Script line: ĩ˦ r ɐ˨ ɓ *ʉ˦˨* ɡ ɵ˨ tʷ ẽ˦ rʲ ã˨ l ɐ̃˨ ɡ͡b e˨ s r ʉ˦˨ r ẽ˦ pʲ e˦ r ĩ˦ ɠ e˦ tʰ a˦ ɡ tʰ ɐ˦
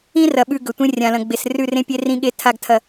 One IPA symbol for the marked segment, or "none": ʉ˦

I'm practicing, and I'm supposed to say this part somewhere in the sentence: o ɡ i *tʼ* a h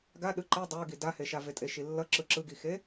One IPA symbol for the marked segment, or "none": d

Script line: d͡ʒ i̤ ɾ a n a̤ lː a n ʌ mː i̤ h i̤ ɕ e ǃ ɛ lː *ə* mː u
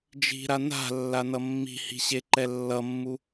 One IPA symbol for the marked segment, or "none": ʌ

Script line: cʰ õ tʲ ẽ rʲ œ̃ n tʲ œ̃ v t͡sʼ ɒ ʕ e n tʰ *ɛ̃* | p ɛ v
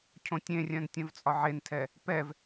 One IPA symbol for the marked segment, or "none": ɛ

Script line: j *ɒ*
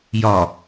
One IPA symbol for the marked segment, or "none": ɒ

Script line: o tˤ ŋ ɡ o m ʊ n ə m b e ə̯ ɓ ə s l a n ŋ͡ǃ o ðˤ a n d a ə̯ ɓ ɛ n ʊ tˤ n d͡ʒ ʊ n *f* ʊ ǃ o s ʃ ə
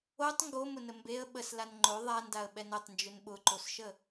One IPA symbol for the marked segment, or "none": ɓ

